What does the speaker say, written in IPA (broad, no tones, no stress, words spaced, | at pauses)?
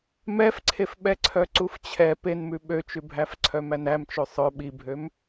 mɛfǀʰefɓɛǀʰœ ǀuft͡ɕʰɛ penmʉ ɓøt͡ʃʉbʱæf ǀʰœmænæm t͡ʃøsˤœ ɓibʱøm